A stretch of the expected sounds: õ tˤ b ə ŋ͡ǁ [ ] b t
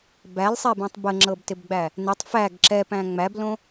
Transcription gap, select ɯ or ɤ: ɤ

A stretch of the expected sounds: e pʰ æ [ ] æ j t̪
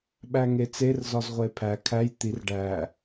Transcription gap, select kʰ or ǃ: kʰ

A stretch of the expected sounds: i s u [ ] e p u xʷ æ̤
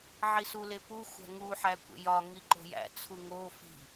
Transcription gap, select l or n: l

